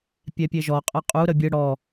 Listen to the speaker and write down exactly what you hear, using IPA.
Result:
pʲ ɛ pʲ e ʒ ɔ qʼ ə qʼ u ɾ ə bʲ ɯ ɽ ɔ

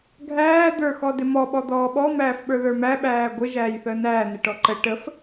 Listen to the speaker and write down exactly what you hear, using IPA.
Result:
ɡʱ æː d̪ ə˞ x ɔ d ɪ m ɔ ɓ ɔ d̪ ɔː ɓ ɔ m æː f ɓ ə˞ ð ə˞ m æ ɓ æː ɡʷ ɪ ʒ æː j θ əː n æː n ɪ ʈ ɔ ǃ ə ʈ ə f

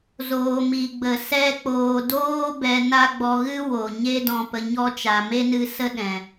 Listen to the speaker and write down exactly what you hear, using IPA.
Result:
z oː˨ m i˨ ɡ͡b ə˨ s ɛ˧ k͡p oː˨ d oː˦ b ɛ˧ n a˦ ɡ͡b ɔ˧ ɣ ɨ˦ w o˨ ɲ e˦ d ɔ̃˧ p ə˧ ɲ ɔ˦ t͡ʃ a˨ m e˦ n ɨ˧ s ə˦ ɗ ɛ̃˨

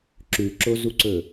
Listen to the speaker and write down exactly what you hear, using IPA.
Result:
ǁ ʉ ǁ o z u ǀ ɵ

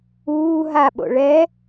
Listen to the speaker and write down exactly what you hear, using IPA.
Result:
uː ɦ a ɓ o̰ ɭ ɛ

